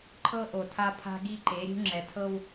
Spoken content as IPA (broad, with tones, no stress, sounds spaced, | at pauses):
ǃʰ ɤ˦ ʔ o˨ tʰ a˦ pʰ a̤˦ ɡ i˦ ǃ e˨˦ ɾʲ ṳ˦ ŋ͡ǁ ɛ˨ tʰ ɤ˦ w